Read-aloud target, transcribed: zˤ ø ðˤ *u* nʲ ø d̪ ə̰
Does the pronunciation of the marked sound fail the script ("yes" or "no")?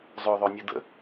yes